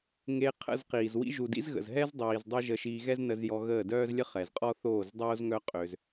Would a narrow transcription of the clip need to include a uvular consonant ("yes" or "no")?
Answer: yes